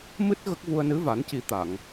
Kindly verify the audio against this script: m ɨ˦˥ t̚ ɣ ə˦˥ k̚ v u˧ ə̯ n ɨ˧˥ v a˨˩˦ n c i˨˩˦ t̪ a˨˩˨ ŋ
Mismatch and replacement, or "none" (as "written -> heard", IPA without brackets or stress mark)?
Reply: none